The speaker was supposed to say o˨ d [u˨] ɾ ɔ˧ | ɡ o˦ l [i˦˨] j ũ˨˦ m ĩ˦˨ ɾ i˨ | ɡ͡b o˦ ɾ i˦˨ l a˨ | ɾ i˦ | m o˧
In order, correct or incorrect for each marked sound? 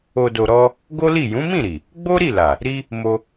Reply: incorrect, correct

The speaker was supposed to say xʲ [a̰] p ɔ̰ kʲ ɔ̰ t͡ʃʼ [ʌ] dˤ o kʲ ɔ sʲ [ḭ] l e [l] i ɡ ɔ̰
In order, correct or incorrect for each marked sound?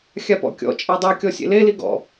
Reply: incorrect, incorrect, incorrect, correct

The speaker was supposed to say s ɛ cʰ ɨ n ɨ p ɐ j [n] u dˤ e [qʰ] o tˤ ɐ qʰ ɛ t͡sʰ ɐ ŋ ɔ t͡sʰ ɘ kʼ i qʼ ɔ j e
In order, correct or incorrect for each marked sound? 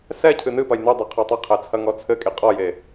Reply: correct, correct

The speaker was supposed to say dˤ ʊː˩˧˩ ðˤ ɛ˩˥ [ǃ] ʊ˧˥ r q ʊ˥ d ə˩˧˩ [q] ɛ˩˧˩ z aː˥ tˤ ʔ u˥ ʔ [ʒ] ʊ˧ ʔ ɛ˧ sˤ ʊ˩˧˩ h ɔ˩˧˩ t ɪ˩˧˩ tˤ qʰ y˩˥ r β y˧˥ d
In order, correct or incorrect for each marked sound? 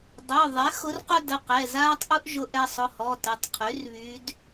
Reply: incorrect, correct, correct

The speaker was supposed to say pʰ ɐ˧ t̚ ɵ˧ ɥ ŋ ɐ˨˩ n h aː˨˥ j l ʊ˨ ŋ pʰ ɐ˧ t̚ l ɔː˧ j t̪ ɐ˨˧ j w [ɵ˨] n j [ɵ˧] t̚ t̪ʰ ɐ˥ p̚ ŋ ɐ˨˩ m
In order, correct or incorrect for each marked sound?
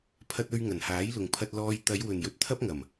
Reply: correct, correct

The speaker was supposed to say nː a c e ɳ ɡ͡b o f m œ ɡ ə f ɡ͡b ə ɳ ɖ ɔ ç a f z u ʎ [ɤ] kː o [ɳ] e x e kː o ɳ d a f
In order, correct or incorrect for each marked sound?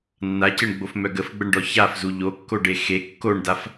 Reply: incorrect, incorrect

